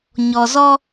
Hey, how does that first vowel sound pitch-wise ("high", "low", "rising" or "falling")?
low